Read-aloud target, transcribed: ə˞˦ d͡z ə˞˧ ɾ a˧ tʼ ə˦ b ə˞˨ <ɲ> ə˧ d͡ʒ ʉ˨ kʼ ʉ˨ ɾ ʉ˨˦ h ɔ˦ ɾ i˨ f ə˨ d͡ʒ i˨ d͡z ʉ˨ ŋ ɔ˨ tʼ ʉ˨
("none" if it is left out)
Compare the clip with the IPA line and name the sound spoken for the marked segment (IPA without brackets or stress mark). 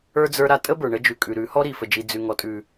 ɳ